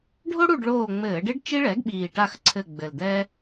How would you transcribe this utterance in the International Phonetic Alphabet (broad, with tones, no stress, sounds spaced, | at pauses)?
ɖʱ o˥ ɽ u˦˨ ɖ ɭ oː˦˨ ŋ͡m ɘː˧˩˧ ɖ e˥ ɖ t͡ʃ i˥ ɭ ɛ˩˥ ɡ ɓ iː˨˩ ʈ a˦˨ x ǀʰ ɘ˦˨ ɡ͡b ɘ˨˩ l d̪ ɛ˥